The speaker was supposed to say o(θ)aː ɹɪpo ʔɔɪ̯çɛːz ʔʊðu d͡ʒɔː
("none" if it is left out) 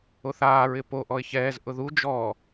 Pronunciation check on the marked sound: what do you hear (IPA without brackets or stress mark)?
θ